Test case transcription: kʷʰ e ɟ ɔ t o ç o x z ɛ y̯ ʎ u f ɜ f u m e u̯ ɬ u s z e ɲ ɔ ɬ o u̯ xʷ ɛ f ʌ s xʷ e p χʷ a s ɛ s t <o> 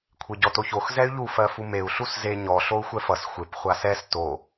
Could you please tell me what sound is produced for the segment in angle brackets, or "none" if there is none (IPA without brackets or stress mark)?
o